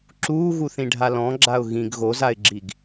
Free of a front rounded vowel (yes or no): yes